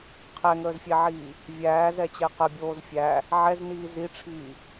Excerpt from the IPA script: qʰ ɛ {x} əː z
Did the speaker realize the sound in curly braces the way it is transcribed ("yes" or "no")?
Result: no